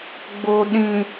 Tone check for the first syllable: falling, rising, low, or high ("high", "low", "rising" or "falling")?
low